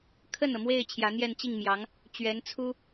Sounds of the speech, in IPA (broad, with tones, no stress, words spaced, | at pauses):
kʰə˥˩nɤ˩mwe˥˩ɪ̯ t͡ɕʰjä˧˥n̪jɛ˥˧n t͡ɕi˥˩ŋmjɑ˧˥ŋ | t͡ɕɥɛ˧˥nt͡sʰu˥